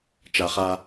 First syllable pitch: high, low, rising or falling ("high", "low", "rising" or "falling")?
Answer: high